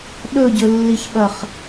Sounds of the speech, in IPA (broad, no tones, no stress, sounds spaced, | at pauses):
ɗ ɵ ɟ ɵ lː i ç ɓ ɐ χ